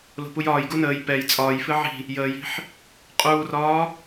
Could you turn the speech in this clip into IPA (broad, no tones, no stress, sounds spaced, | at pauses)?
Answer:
l o̤ p u j ɒː j ɡ u n əː j p ɛ j t͡sʼ ɒː j f ɨ ʕ i̤ | j əː j i̤ ħ | qʼ uː r ɒː